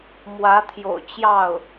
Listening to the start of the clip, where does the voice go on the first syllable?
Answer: rising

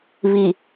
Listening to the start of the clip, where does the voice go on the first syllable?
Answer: low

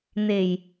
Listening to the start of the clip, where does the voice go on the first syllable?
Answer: low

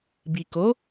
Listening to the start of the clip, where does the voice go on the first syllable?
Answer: low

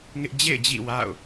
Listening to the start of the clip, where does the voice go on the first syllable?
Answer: high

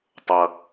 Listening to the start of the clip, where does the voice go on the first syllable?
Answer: low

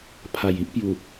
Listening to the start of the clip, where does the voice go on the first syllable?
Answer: low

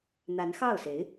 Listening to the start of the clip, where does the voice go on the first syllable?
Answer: rising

